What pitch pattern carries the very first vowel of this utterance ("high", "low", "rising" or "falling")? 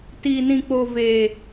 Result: low